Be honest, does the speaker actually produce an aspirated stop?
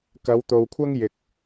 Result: yes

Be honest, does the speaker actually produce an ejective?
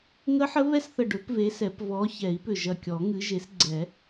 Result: no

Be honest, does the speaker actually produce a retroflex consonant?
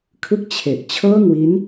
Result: no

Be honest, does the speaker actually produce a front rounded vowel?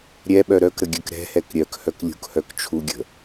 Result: yes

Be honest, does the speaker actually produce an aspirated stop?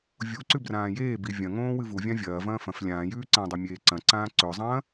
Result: no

